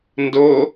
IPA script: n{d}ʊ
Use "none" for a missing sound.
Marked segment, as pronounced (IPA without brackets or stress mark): d